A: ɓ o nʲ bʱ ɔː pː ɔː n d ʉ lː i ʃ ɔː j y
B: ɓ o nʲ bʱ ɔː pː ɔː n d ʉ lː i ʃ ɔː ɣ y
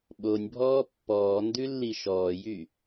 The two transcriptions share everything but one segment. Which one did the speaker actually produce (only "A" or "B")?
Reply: A